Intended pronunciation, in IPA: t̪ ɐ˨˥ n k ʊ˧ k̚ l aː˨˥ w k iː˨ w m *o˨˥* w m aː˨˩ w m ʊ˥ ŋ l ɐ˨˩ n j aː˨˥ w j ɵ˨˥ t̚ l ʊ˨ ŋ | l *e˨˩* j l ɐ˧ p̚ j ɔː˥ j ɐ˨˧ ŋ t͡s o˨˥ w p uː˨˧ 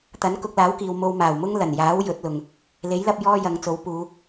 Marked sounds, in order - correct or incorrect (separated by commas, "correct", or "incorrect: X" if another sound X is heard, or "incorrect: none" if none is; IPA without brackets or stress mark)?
incorrect: o˧, incorrect: e˨˥